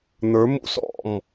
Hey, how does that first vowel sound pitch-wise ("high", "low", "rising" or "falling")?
rising